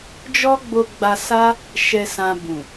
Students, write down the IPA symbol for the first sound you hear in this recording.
d͡ʒ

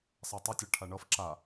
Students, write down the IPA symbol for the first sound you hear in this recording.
sˤ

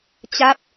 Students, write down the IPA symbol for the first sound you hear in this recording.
t͡ɕ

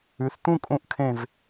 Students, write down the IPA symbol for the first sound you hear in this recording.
ʉ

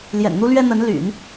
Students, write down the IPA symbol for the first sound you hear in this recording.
l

